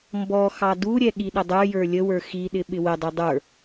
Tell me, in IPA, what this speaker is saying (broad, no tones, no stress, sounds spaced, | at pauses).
m b ɔ x ɑ d u ɾʲ ɛ ɠ i ɗ ə dˤ ə˞ j ə˞ lʲ ə w ə˞ x i ɗ ɪ ɓ ɪ w ə dˤ i dˤ ə˞